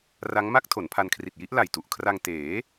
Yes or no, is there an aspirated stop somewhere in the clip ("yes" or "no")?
yes